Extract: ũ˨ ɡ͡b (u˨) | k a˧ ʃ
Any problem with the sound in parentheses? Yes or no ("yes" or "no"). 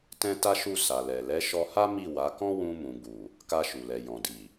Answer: no